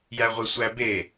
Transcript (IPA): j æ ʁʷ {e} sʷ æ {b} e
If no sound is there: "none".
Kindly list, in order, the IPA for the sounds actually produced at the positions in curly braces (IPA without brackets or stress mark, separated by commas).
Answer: e, b